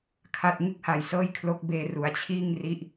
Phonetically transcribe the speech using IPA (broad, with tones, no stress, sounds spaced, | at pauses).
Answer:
kʰ a˥˩ t̚ ŋ ɯ˥˩ k̚ h a˧ j s ɤː˥˩ j kʰ l o˦˥ k̚ b eː˧ r u˩˦ a̯ t͡ɕʰ iː˥˩ ŋ r i˦˥ ʔ